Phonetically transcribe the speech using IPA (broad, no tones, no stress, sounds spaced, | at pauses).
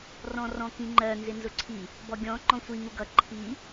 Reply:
r ɔ̃ r ɔ̃ k ĩ ŋ͡ǃ ɜ n z ɪ n z ʊ ǀʰ i | b ɔ ɡʲ ɔ̃ ŋ͡ǃ ɔ̃ sʷ i ŋ u ɡ ʌ ǃʰ i